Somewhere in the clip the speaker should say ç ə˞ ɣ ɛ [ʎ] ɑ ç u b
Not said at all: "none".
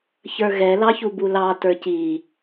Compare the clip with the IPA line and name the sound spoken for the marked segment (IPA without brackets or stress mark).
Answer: l